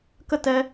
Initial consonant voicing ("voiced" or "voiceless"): voiceless